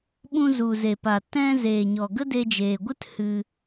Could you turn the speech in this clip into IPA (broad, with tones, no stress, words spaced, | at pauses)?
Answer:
ɓũ˧zu˨ze˨ pa˨tɛ̃˧zeː˨ɲɔ˨ ɡə˦de˧d͡ʒeː˨ɡʷɨ˦t hɨ˧